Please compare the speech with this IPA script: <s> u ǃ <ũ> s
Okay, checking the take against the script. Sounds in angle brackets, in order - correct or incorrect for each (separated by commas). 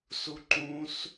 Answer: correct, correct